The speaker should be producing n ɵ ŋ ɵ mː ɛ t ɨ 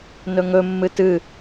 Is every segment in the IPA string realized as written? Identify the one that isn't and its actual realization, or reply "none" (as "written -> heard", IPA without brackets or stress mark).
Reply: ɛ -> ɨ